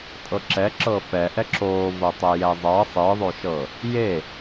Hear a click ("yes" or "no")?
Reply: yes